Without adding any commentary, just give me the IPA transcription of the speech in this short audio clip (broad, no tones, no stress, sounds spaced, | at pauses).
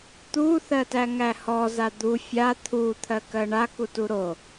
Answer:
t̪ u θ ɜ t æ ŋ æ h ɔ z a d̪ u fʲ a t̪ʰ u t̪ʰ ɜ k ɜ ɳ a k u t u ɾ o